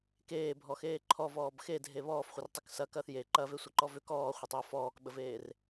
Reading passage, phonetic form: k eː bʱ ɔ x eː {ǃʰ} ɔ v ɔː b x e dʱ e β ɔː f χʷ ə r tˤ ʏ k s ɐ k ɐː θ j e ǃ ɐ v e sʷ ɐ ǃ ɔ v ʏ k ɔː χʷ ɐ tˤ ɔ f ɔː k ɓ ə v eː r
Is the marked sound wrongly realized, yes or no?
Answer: no